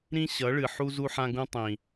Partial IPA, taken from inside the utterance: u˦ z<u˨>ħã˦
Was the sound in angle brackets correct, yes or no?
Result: no